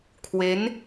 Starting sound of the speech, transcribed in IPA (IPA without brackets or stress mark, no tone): kʰ